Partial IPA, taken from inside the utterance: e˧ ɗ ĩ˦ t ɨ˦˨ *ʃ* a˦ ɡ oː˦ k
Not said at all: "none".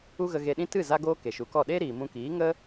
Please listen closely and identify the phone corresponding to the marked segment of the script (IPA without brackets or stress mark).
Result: z